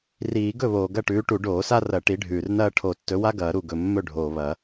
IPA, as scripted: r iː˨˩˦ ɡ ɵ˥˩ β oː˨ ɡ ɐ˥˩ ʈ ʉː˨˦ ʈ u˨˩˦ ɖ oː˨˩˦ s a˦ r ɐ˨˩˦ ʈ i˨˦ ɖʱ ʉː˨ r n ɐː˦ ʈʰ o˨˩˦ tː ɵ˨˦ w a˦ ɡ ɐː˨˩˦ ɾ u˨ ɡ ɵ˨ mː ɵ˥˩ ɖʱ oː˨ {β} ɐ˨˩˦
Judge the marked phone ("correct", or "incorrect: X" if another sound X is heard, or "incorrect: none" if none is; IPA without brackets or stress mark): correct